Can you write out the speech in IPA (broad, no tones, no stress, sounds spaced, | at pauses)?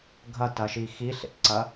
ɡʱ ɐ t ɐ ʃ i x i ɬ ḛ t ǀ ɐ